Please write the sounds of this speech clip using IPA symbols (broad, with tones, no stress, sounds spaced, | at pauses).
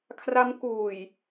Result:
kʰ r a˦˥ m k uː˨˩ j